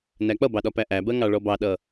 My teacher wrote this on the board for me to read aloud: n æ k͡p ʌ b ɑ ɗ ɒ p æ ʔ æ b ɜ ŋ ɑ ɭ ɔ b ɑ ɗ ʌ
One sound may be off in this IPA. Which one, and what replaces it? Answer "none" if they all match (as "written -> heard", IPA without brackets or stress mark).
none